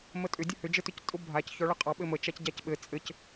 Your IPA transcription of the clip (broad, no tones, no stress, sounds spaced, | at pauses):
m ə tʼ ʏ dʲ ʊ h ʏ d͡ʒ ɘ t ʏ c tʼ ʊ bʱ a c ç ɔ ɭ ɑ qʼ ɑ ɓ ɘ m ə t͡ʃ a c ɟ a c ɓ ɘ t͡sʼ ɘ c